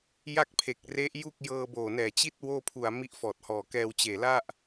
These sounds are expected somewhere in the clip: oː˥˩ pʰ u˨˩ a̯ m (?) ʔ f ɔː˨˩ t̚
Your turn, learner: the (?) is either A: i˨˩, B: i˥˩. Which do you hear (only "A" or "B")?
B